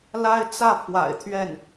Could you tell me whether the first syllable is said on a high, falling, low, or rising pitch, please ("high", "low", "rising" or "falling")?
high